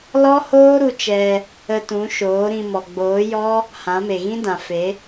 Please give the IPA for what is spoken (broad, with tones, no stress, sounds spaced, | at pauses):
l ɔ˦ h oː˦ ɾ u˧ t͡ʃ ɛ˧ | ə˧ t ũ˨˦ ʃ oː˨˦ ɾ ĩ˧ m ɔ˨ ɡ͡b oː˨˦ j ɔ˦ | h ã˨˦ m e˨ ɣ ĩ˦ d ã˨ f e˨˦